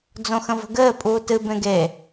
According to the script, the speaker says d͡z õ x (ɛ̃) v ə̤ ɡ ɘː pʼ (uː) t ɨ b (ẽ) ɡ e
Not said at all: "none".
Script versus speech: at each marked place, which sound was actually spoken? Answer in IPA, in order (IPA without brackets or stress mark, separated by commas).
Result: ə̃, uː, ẽ